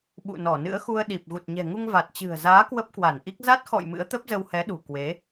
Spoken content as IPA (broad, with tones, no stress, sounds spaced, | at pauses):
ɓ ṵ˧˨ n ɔ˧˩ n ɨ̰˧˥ ə̯ x u˧ ə̯ ɗ i˨˩ p̚ ɣ u˨˩ t̚ ɲ ɛ̤˨˩ ŋ u˧ ŋ v a˨˩ t̚ t͡ɕ ɨ̤˨˩ ə̯ z aː˨˦ k w ə˦˥ p̚ k w a˧˩ n ʔ i˦˥ k̚ z a˦˥ t̚ x ɔ̰˧˨ j m ɨ̰˧˥ ə̯ t̪ ə˦˥ p̚ z ə˧ w h ɛ˨˦ ɗ ṳ˨˩ k w e˨˦